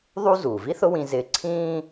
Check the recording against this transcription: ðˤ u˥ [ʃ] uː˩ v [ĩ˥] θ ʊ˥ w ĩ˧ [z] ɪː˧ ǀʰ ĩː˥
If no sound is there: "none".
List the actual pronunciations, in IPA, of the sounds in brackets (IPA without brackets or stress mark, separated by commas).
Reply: z, i˥, z